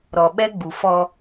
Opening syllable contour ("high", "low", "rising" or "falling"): low